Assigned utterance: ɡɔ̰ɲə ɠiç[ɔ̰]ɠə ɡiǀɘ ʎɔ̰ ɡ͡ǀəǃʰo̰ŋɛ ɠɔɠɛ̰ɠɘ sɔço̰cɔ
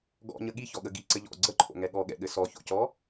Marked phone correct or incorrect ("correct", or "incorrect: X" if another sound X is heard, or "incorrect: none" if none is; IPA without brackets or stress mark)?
incorrect: ɔ